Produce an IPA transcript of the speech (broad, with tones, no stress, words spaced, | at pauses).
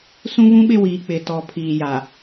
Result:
sũ˦βũ˦ɓɪ˦wiː˨ k͡pɪ˨tɔ˨ pʰiː˨ja˨